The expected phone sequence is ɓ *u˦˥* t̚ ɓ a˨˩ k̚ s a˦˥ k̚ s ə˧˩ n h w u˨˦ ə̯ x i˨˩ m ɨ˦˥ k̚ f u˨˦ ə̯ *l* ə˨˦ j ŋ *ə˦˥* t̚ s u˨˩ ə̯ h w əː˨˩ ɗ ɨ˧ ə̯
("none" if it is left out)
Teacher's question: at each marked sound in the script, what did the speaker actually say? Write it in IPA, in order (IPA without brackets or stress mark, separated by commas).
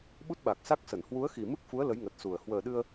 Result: u˦˥, l, ə˨˩